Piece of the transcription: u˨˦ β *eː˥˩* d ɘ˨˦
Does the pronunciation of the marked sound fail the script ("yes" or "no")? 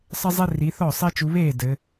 no